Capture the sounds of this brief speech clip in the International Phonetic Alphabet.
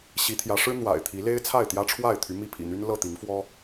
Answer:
ɕ i˨˦ t̪ʰ j ä˨˦ ʂ ɻ̩˦ n̪ w a̰˨˩ ɪ̯ t̪ʰ i˨˦ l e˦ ɪ̯ t͡sʰ a˥˨ ɪ̯ t̪ j ä˦ ʈ͡ʂʰ w a˥˨ ɪ̯ t̪ʰ y˨˦ m i˥˨ pʰ ḭ˨˩ n̪ y˦ n l ɤ˥˨ t̪ i˨˦ ŋ f w ɔ˦

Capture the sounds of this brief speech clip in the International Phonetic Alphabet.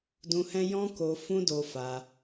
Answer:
d ũ˧ h ɛ̃˦ j ɔ̃˦ k o˧ f ũ˦ d o˧ f a˧

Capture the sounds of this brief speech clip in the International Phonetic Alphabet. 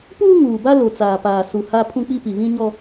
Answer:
p uː˦ ŋ uː˨ b a˦ l o˨ t͡s aː˨ p aː˨ s u˨ h a˦ pʰ ũ˦ k͡p i˦ p i˨ β ĩ˦ ɲ ɔ˦

